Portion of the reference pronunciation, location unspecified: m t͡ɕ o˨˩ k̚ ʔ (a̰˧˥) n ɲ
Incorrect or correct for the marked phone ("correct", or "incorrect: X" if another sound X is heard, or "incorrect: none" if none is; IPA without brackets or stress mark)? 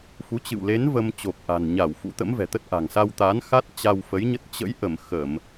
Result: incorrect: a̤˨˩